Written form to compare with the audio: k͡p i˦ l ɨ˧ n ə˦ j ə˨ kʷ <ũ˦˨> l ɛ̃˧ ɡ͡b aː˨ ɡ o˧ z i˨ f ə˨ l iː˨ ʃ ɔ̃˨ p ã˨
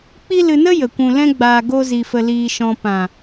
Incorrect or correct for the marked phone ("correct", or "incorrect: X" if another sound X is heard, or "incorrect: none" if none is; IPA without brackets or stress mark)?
incorrect: ũ˨